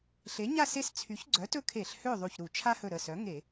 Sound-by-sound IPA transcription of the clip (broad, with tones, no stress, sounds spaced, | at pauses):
ɬ e˩˥ ɲ a˥˨ s e˦ s t͡sʰ y˩˥ ç ɡ͡ǀ œ˩˥ t ɵ˦ kʰ e˧˩˧ ɬ h ø˥˨ ðˤ u˧˩ ç ɾ u˧˩˧ t͡ʃʰ a˦ h ɵ˧˩ ɾ ə˧˩ s œ˩˥ ŋ e˧˩˧